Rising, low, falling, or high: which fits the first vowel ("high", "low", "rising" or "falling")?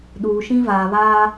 low